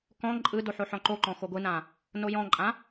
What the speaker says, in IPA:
k ɔ̃ ǃʼ ɯ d o ħ o ħ ɔ̃ ǃ o ǃ ɔ̃ x o ɡʷ ɯ n ã | n o j ɔ̃ ǃʼ ã

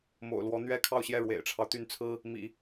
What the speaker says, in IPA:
m o̰˨˩ ʊ̯ l w ɔ˧˥ n̪ ɥ ɛ˥ kʰ ɑ˥˧ ʊ̯ ɕ j ɛ˥˩ ɻ w ḛ˨˩ ɪ̯ ʈ͡ʂʰ ɑ˦ ʊ̯ t̪ y˥˩ n t͡sʰ ɹ̩˥ | m ḭ˨˩˦

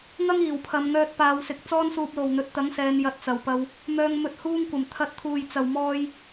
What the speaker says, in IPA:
ŋ ɐ˥ ŋ iː˨˩ w pʰ ɐ˨˧ m ŋ œː˧ t̚ p aː˨˧ w s ɪ˨ k̚ t͡s ɔː˥ n s uː˧ p̚ l o˨ w n̪ ɵ˨˥ t̚ t̪ ɐ˨˥ ŋ s ɛː˨˧ n j ɐ˧ t̚ t͡s ɐ˨ w p ɐ˧ w | m œː˧ ŋ m ɵ˧ t̚ h uː˧ ŋ kʷ ɐ˨˩ m t̪ʰ ɐ˧ t̚ t̪ʰ uː˨ j t͡s ɐ˨ w m ɔː˧ j

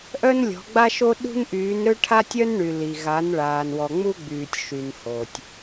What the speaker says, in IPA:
ʔ œ˦ n lʲ ɔ̤˨˦ ɡ͡b a˦ ʃ o˦ ɗ ṳ˦ n ʔ yː˨˦ n ɾ ø˦ ʈʰ a˦ tʲ œ˦ n ɳ y˨ l i˨ ɣ a˨˦ n ɭ aː˨ n w ɔ˨ ŋ͡m u˦ ɡ͡b yː˨ tʲ ʃ y˨ n h o˨ tʲ

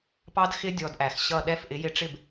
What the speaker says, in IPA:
p ɑ˦ d x ɪ˦ dʲ ɔ˧ d ʔ æ˨ x ɕ ʌ˦˨ ɗ ɛ˦˨ f ʔ ɪ˨˦ j ɪ˧ ʈ͡ʂ ɪ˦˨ b

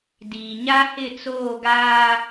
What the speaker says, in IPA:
d iː˨ ɲ a˦ h ɪ˦˨ t͡s oː˦˨ ɡ aː˦

